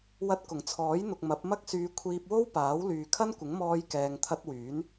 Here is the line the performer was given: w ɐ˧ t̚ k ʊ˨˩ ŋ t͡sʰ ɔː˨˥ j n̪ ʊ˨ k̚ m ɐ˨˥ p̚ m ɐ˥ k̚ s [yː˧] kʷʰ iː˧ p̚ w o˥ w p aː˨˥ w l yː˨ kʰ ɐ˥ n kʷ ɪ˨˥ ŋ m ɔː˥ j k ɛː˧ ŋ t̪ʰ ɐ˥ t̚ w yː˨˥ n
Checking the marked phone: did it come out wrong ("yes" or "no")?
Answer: no